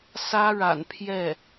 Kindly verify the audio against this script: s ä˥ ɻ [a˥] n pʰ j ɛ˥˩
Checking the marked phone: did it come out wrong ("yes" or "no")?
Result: yes